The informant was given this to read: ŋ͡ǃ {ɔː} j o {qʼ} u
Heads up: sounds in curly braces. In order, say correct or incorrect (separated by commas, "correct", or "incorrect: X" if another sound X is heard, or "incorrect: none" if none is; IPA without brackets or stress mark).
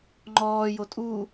correct, incorrect: tʼ